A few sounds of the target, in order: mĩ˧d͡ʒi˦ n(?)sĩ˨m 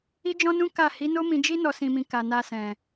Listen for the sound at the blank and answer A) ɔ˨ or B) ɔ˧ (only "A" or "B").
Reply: B